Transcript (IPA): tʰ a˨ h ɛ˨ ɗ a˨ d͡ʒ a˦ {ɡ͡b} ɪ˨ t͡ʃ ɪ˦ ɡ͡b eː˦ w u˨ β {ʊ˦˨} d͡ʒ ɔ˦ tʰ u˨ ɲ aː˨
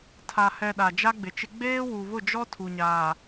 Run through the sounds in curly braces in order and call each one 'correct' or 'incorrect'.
correct, correct

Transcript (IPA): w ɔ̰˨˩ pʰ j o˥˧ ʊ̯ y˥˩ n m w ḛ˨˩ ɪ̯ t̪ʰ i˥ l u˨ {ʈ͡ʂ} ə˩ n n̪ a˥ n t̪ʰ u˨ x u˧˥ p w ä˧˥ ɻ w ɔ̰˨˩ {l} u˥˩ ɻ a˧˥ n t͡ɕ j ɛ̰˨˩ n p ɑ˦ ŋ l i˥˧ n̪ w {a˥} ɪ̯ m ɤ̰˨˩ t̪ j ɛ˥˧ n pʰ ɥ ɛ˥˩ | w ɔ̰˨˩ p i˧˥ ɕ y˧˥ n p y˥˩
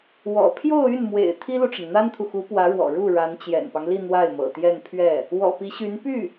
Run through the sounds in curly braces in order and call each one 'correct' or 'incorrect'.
correct, incorrect: ɻ, incorrect: a˥˩

